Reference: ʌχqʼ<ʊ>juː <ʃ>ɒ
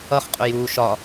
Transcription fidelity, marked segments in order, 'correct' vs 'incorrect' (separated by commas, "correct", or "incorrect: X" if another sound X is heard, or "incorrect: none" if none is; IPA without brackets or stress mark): correct, correct